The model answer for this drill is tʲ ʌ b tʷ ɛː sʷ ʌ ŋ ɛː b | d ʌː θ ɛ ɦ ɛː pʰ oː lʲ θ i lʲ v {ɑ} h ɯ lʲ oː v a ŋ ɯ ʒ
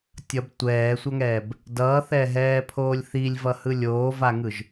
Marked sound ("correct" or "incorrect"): incorrect